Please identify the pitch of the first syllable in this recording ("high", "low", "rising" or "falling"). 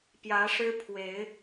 rising